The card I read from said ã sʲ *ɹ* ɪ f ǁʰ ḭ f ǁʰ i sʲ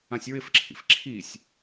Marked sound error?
no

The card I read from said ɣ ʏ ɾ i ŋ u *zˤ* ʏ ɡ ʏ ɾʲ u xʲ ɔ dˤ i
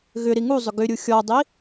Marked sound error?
no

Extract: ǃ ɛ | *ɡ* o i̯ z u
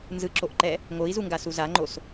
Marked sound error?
yes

